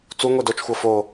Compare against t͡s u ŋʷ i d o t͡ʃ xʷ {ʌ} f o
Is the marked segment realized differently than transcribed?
no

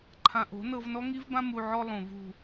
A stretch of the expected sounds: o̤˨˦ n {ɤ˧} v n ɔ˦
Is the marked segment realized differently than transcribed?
no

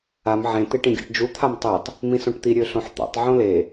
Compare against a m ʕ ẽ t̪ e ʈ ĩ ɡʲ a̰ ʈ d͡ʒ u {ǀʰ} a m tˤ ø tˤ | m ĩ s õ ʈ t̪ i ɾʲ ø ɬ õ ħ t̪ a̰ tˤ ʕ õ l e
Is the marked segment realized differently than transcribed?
yes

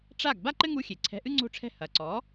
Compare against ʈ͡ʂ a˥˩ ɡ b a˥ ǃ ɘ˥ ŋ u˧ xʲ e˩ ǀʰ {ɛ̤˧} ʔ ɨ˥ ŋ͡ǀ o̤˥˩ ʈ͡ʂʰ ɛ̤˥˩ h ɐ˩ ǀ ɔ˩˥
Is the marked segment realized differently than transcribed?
no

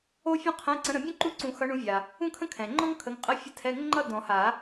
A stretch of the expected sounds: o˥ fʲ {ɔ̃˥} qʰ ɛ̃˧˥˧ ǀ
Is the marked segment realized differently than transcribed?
no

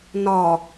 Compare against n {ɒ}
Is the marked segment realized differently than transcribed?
no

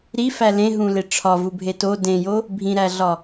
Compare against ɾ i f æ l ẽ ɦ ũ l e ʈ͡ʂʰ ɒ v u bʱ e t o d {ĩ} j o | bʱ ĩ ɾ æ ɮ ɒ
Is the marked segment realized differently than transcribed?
yes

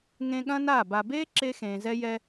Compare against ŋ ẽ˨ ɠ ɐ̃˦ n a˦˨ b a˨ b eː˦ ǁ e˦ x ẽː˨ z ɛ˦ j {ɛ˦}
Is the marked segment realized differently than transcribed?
no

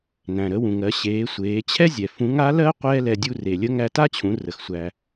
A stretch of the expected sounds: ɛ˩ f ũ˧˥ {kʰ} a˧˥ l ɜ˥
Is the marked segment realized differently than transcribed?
yes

